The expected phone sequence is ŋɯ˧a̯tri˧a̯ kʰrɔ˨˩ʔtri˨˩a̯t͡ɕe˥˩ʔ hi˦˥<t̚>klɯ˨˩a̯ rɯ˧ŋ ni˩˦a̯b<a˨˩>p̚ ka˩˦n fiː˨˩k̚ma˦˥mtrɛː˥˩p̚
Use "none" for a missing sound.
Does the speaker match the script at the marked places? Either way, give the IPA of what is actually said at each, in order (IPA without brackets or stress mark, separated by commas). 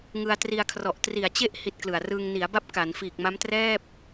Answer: t̚, a˦˥